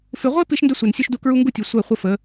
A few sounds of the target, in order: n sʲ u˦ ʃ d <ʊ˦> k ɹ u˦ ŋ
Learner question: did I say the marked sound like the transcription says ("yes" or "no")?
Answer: no